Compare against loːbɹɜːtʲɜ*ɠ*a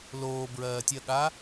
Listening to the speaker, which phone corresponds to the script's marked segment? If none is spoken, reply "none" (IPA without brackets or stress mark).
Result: ɠ